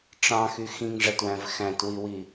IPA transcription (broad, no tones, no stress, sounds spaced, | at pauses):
ʈ͡ʂ ɑ̃ x y x ĩ ŋ ʐ æ t w æ̃ v x æ̃ t w i w i